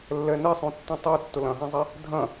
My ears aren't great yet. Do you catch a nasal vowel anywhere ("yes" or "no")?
yes